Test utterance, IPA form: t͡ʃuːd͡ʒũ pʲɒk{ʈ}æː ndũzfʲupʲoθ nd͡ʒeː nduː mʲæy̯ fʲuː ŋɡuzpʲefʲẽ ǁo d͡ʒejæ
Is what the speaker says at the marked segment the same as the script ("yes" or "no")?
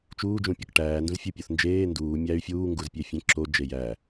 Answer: yes